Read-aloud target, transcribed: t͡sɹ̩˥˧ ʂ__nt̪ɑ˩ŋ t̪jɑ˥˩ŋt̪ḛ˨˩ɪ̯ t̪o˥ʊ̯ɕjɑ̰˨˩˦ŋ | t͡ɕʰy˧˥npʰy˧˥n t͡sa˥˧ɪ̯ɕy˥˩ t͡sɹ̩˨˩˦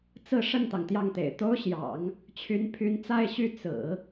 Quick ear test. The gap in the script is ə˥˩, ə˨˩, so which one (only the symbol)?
ə˥˩